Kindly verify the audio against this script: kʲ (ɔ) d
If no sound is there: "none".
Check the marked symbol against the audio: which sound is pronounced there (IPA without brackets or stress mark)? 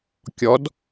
ɔ